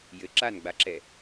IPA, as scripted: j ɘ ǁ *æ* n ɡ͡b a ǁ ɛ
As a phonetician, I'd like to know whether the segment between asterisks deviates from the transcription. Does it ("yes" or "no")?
yes